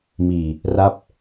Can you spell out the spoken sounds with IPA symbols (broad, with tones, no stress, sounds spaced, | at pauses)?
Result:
m iː˨˩ | r a˦˥ p̚